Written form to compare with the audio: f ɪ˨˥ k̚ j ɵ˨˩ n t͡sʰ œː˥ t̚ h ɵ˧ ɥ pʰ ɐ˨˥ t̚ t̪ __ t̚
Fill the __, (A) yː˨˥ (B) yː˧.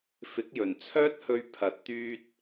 B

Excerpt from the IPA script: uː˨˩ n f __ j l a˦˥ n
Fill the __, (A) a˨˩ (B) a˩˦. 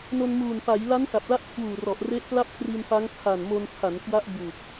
B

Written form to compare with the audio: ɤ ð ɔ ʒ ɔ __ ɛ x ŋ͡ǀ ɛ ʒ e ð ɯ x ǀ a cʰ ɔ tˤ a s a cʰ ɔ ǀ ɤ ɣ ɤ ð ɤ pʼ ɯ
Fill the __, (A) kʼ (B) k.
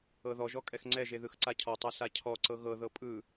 A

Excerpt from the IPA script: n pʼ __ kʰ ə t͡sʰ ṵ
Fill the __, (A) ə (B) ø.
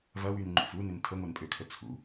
B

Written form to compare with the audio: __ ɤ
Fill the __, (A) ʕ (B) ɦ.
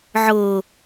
A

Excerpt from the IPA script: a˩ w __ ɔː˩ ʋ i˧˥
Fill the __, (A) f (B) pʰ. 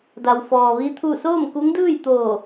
A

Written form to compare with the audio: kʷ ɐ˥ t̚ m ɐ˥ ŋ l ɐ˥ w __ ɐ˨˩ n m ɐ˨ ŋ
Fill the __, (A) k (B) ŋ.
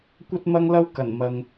A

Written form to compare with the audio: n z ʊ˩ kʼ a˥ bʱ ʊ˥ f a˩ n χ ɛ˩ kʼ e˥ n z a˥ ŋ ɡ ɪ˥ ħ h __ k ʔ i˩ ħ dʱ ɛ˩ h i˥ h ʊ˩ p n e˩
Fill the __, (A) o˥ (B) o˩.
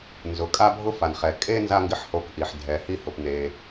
A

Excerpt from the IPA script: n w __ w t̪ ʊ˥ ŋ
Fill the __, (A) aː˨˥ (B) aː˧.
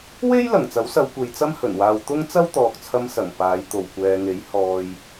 B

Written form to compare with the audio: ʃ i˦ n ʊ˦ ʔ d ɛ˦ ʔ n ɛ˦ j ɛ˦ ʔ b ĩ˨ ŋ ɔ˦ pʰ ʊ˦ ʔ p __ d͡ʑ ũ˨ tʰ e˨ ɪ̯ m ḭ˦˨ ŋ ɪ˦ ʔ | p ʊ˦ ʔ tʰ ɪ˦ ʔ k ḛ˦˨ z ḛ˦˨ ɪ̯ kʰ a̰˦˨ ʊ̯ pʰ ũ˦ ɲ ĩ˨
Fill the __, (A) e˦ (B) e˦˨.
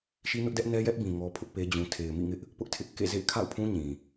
A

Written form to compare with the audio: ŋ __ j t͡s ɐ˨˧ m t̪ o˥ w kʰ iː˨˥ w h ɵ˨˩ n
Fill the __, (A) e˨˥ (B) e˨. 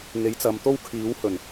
A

